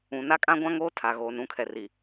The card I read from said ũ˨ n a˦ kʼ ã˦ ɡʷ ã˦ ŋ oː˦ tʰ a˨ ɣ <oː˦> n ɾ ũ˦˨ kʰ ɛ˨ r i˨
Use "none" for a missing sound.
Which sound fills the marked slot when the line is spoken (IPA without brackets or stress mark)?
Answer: oː˨